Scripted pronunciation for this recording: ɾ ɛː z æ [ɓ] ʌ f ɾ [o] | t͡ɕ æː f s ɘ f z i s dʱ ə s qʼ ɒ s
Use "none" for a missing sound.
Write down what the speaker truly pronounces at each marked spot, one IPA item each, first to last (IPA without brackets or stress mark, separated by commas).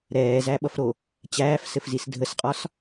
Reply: ɓ, o